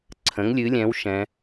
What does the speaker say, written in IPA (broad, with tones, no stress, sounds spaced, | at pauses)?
ǀʰ ə̃˩˥ ŋ lʲ ɨ˩˥ lʲ ɛ̃˩˥ w ʃ ɛ̃˩˧